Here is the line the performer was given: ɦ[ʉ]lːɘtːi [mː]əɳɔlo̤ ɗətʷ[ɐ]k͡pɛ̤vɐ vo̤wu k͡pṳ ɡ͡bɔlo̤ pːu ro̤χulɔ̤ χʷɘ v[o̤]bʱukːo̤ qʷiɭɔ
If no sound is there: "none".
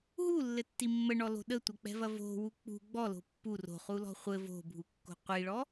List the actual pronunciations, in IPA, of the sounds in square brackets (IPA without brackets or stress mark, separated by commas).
u, mː, ɐ, o̤